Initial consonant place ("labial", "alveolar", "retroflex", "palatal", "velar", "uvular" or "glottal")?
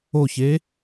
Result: palatal